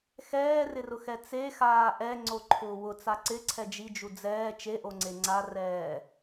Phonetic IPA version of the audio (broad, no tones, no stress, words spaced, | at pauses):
xɛːrɪrʊxɛ t͡sexaː ʔɛŋ͡ǀoǃʰʊː wʊt͡sa ǀɪǀʰɛ d͡ʒid͡ʒu d͡zɛː t͡ʃeʔoŋ͡ǀe ŋ͡ǀarɛː